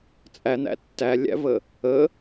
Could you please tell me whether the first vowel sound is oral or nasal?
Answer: oral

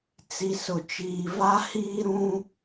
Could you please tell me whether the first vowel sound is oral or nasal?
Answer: oral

